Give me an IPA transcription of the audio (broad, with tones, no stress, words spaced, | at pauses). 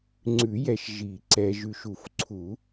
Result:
ŋ͡ǀʉ˨˩˦jɛ˨ʃ ʒi˨˩˦ ǀɛ˨ʒʉ˨ʃ u˨˩˦fǀʰu˨˩˦